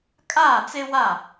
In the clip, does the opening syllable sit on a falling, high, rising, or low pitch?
falling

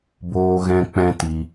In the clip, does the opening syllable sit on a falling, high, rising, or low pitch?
high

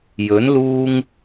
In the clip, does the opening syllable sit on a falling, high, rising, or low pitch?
rising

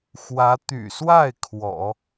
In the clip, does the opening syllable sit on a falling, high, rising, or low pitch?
rising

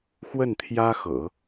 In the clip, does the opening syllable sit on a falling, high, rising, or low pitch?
falling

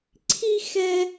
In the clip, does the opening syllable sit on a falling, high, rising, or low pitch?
high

